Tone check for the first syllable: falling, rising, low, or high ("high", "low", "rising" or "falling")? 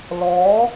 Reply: rising